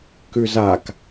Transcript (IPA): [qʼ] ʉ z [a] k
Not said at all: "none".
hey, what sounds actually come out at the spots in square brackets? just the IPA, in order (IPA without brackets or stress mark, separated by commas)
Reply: k, a